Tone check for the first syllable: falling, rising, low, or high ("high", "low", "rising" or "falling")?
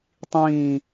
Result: falling